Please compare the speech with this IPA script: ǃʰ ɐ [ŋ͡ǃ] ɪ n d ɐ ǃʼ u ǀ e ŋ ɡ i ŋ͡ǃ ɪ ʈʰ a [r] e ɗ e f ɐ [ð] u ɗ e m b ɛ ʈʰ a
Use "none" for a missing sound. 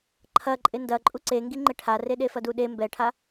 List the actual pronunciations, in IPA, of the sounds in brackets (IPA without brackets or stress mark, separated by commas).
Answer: ǃʼ, r, d